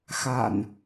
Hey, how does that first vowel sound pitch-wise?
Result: low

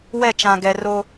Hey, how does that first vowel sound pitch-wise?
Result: falling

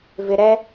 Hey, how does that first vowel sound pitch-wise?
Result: low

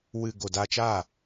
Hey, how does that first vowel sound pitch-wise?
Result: low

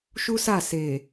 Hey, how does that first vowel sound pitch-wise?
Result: high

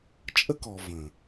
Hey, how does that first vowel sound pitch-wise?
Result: high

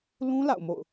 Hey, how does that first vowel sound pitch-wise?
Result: high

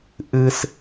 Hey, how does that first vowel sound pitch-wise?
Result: high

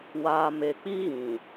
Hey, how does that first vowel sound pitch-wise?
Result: low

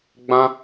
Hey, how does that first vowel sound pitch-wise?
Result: high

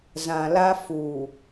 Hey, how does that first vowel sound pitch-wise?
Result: low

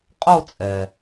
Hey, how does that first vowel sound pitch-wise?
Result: falling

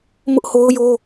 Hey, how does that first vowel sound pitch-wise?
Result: high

